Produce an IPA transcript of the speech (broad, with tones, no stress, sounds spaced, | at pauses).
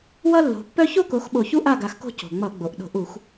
w ʌ˥ lː o̤˨˦ pː œ˥ ç o˥ k o˨˦ x ɓ o˧˩ ç u˥ ʔ a˥˨ ɡ a˨˦ x k o̤˥˨ c o̤˩ ŋ͡m ʌ˧˩˧ ɡ͡b o˩ ʔ ɗ o̤˧˩˧ ʔ u˧˩˧ x